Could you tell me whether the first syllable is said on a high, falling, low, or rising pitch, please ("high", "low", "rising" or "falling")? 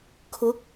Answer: rising